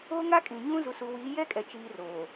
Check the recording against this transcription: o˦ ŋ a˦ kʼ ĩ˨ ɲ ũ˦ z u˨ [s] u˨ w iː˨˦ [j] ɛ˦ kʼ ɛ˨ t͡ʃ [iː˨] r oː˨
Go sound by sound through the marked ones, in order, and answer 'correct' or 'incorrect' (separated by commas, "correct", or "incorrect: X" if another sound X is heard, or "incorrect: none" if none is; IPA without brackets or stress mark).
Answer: correct, correct, correct